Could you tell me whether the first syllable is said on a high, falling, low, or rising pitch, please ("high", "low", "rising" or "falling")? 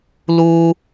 high